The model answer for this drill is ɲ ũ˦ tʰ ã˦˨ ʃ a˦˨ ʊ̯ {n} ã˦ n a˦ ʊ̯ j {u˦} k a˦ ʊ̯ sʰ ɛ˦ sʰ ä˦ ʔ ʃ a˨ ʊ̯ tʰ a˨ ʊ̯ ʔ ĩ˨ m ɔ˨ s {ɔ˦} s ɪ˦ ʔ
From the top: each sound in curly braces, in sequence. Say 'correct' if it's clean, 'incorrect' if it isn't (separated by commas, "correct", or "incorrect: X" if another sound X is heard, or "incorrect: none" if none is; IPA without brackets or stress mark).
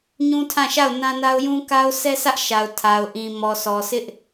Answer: correct, incorrect: ũ˦, incorrect: ɔ˨